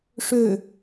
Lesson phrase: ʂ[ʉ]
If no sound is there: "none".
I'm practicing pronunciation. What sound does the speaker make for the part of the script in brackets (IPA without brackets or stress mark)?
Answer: ø